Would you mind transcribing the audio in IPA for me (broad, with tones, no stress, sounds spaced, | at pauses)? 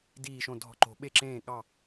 d iː˧˩ ʃ õ˧˩ dʱ ɔ̤˧˩ ǃ o̤˨˩˦ ɓ e˧˩ ǁ ẽː˧˩ ɠ ɑ˧˩